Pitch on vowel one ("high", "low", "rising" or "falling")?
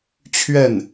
falling